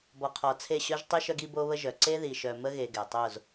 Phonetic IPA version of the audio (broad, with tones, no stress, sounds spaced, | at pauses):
b ɔ˨ qʰ ɔ˨ t͡sʰ e˦˨ ɕ œ˦ ʒ tˤ i˦ ʃ œ˦ ɡ i˦ b o˦ β ə˦ ʒ œ˨ ǀ e˦ ð i˨ ʃ œ˨ m ə˦ ɣ e˨ ɡ ɛ˨ tˤ o˦˨ z